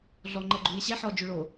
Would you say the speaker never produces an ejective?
yes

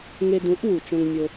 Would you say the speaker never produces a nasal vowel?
no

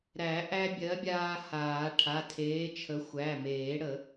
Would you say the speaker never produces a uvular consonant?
yes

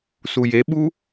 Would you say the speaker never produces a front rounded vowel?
yes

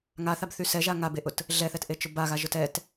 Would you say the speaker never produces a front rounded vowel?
no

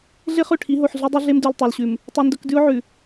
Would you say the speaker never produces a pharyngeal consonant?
no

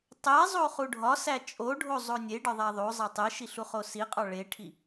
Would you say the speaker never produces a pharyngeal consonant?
yes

